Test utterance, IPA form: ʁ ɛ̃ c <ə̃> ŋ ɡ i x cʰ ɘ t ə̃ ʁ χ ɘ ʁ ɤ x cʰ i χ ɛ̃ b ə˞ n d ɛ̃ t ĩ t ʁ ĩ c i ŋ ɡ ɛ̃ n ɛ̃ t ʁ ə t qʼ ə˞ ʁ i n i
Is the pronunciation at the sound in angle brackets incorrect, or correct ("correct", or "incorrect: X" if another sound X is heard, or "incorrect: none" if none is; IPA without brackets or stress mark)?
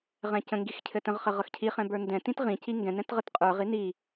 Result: correct